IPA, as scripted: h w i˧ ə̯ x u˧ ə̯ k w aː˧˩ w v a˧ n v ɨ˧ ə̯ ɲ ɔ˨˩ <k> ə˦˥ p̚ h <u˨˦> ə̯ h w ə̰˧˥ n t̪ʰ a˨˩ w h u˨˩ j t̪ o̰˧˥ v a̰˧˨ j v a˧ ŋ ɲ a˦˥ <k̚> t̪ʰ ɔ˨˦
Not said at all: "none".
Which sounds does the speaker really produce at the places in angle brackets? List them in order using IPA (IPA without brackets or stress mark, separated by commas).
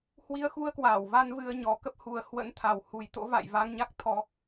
k, u˨˩, k̚